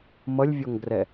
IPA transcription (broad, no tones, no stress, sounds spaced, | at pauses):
m ʌ lʲ vʲ ɔ ŋ ɡ r ɛ